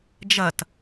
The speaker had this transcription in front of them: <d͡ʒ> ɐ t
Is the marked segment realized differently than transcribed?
no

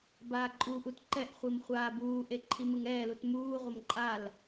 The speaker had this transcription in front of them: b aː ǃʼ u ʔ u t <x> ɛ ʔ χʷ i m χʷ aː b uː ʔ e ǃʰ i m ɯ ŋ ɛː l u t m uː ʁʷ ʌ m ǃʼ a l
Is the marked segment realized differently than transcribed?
yes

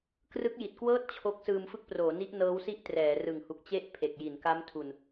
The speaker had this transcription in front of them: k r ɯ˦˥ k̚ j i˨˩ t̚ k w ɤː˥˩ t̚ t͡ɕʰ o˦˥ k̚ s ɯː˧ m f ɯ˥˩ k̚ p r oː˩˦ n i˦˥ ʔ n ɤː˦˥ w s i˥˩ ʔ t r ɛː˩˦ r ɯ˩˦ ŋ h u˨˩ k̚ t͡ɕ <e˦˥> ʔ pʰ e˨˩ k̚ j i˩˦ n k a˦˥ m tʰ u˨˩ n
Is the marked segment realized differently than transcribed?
yes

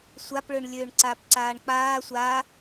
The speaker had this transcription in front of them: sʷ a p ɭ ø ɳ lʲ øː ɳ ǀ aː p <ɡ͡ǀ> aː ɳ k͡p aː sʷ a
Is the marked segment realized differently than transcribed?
yes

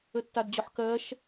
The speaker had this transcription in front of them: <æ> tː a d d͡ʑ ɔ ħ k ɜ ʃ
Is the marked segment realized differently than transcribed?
yes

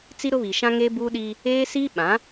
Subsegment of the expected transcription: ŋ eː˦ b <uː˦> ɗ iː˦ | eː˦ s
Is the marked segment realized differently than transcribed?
no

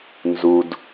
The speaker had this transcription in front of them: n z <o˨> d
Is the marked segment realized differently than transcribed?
yes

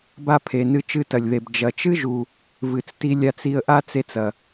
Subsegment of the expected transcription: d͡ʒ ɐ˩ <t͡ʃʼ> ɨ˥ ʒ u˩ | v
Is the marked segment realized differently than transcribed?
yes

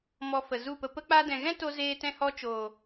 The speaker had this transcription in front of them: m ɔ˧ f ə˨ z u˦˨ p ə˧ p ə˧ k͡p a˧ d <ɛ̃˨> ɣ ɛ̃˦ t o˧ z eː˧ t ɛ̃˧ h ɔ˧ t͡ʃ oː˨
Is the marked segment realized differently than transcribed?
no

